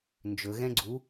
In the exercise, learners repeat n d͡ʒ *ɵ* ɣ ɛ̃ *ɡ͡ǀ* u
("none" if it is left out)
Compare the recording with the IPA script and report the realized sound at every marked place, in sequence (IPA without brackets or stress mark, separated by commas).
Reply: ɵ, ɡ͡ǀ